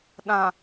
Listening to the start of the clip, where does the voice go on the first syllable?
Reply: low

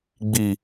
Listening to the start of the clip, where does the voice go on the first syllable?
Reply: low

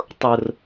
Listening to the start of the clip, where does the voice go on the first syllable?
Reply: high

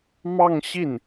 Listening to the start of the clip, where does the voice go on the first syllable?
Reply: falling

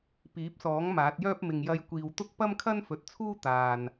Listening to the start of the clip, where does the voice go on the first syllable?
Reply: rising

